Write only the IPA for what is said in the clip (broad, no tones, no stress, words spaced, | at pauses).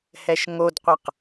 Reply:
hɛʃŋodqʷɐq